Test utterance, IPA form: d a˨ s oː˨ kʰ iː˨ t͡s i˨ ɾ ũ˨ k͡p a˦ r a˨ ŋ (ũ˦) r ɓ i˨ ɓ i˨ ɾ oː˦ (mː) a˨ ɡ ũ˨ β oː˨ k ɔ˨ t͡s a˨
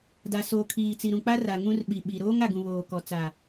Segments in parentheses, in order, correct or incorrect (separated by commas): correct, incorrect